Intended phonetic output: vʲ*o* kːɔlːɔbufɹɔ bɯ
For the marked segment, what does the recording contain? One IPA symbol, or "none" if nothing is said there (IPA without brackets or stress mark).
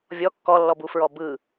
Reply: ɔ